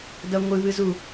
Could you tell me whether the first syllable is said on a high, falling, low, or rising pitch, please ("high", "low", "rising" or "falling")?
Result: high